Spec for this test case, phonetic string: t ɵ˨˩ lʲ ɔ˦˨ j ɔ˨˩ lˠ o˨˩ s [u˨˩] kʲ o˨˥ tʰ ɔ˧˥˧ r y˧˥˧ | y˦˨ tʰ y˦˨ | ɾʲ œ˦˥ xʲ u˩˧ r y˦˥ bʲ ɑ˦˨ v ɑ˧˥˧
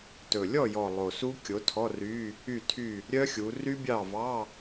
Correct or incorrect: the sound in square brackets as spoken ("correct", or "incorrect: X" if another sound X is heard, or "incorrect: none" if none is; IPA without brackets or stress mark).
incorrect: u˦˥